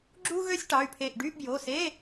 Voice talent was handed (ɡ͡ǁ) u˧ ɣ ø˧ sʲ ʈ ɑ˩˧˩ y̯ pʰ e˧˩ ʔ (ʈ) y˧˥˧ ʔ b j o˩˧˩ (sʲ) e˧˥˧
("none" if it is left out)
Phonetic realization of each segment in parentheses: ɡ͡ǁ, ɖ, s

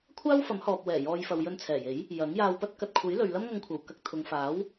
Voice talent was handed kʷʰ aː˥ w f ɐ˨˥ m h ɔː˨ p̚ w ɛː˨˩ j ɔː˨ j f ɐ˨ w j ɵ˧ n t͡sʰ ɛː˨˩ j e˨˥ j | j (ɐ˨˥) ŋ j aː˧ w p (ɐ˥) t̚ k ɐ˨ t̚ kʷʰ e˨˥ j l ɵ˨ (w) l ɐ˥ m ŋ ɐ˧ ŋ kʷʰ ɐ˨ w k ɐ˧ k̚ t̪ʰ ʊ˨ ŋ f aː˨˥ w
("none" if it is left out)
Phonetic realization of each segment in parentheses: ɐ˨˥, ɐ˥, ɥ

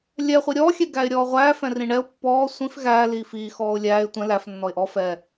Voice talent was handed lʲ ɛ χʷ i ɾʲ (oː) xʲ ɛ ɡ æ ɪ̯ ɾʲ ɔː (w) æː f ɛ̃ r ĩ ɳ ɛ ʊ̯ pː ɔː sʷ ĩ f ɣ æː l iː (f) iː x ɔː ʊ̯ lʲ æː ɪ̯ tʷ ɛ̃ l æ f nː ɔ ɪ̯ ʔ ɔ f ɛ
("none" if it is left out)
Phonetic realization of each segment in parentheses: ɔː, ʁʷ, f

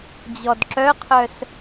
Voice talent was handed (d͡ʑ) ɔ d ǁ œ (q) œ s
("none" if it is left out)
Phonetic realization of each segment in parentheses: d͡ʑ, qʰ

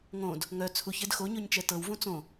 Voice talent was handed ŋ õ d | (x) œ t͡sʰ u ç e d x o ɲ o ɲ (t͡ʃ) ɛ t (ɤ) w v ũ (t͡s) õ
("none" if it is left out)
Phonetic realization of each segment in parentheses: ŋ, t͡ʃ, ɤ, t͡s

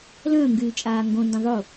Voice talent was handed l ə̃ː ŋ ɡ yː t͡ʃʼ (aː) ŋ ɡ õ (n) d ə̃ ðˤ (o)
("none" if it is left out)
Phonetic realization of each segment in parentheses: aː, n, o

